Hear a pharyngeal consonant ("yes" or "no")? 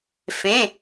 no